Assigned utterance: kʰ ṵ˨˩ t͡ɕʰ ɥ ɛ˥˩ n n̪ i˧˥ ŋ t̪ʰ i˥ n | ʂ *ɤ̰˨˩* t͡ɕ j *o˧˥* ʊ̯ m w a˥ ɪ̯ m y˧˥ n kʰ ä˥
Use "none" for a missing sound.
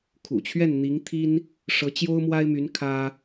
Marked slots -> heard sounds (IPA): ɤ˧˥, o˥

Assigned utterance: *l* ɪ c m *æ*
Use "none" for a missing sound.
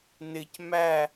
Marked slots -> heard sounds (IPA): n, æ

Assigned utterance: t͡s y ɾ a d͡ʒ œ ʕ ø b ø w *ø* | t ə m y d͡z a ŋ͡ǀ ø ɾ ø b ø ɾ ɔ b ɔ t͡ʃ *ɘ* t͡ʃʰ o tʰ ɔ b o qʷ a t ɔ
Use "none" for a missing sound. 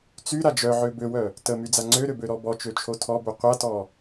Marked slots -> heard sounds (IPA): œ, ø

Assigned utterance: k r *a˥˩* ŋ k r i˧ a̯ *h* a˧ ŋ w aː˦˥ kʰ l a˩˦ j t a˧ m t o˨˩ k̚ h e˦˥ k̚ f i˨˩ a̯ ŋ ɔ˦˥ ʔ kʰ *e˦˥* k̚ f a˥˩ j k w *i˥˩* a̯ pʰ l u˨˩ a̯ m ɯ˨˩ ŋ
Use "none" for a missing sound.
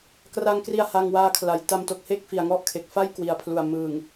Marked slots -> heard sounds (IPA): a˧, h, e˨˩, i˨˩

